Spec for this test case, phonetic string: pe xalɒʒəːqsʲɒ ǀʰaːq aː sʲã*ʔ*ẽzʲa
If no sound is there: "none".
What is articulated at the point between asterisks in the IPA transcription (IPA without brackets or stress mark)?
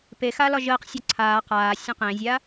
q